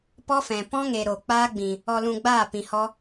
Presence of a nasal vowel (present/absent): present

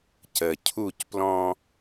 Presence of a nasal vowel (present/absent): present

